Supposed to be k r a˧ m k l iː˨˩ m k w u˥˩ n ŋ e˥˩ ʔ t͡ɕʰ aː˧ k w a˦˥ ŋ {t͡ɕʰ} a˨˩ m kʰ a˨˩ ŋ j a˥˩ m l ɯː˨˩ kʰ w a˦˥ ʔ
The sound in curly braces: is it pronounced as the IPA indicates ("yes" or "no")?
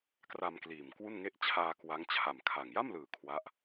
yes